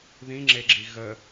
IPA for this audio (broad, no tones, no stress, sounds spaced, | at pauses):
ð ĩ ŋ͡ǁ e ɡ͡ǁ i ɣ ə